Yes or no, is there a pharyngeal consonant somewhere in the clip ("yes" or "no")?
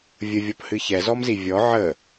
yes